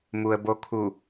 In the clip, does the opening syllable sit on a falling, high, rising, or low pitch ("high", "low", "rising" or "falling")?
low